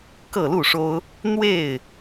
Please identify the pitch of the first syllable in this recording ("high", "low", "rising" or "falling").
falling